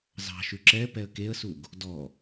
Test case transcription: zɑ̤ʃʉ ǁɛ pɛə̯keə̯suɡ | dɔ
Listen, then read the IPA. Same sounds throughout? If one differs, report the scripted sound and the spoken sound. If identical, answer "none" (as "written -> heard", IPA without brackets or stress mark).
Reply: none